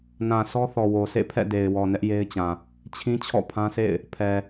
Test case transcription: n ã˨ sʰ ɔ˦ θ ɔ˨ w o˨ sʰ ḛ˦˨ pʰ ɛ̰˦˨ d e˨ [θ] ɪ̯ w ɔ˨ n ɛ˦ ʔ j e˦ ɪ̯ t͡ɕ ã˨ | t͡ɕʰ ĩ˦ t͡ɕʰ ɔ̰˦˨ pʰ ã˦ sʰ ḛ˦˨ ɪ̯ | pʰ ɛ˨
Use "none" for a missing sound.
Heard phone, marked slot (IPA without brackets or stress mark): none